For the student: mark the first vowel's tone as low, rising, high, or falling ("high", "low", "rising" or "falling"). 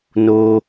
high